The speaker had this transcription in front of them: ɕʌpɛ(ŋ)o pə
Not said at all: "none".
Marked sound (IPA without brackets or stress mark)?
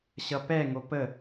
ŋ